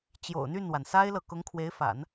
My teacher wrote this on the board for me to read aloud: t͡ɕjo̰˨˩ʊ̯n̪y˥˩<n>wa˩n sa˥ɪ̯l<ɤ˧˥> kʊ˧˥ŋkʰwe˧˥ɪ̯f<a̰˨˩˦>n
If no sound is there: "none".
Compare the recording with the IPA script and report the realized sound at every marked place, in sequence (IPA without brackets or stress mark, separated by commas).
n, ɤ˨, a̰˨˩˦